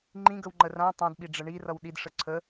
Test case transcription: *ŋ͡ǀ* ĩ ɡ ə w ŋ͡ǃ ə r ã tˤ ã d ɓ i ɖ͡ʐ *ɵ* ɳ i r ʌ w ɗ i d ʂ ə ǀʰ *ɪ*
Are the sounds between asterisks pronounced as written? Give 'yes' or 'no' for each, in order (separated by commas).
no, no, no